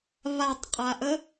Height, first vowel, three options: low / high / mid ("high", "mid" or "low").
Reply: low